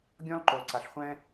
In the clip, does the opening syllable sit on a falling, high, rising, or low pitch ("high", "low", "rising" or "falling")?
high